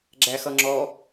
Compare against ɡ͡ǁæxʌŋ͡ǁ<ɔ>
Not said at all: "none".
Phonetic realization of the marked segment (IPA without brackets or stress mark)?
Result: ɔ